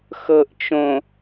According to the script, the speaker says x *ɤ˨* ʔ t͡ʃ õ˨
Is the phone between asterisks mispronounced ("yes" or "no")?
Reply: no